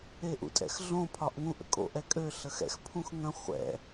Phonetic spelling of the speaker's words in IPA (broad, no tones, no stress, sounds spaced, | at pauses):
e ʔ ṵ tʼ ɛ̰ x ɮ õ pʰ ɒ ʔ ŋ ũ ʔ ə̰ kʼ o̰ ʔ ɛ kʼ ø ɬ ə x ɛ̰ x pʰ ũ x ŋ ə̃ χʷ ɛ̰